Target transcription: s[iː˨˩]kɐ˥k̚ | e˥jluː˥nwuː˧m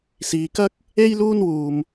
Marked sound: incorrect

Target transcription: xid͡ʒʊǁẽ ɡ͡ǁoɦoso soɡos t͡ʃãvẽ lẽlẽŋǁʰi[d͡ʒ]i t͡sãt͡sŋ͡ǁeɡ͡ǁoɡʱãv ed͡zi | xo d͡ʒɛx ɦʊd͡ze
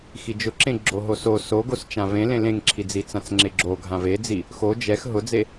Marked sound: incorrect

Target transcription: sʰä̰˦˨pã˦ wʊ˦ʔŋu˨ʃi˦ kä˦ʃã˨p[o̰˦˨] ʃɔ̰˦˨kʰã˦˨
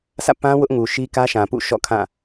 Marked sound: incorrect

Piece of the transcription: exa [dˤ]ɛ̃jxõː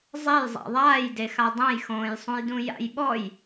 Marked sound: correct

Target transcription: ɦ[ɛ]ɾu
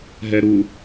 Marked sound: correct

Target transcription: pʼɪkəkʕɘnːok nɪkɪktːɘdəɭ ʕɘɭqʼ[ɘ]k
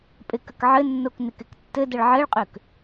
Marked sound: incorrect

